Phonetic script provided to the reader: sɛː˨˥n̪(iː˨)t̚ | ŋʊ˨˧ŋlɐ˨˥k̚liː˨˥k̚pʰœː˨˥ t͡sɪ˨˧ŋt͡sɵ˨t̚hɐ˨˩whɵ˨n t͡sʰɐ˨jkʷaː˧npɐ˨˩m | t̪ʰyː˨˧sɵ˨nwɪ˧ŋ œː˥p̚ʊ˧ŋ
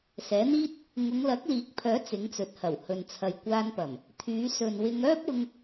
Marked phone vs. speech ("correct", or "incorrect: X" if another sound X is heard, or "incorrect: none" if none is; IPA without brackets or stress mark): incorrect: iː˥